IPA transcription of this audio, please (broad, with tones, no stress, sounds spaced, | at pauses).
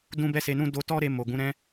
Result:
d ũ˦ b ɛ˦ s e˧ n ũ˦ d o˧ t ɔ˦ ɾ e˧ m o˨ ɡ ũ˨˦ ɾ ɛ̃˦